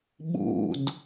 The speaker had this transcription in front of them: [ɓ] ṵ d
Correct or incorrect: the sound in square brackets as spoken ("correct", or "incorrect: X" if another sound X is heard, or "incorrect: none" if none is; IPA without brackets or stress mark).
correct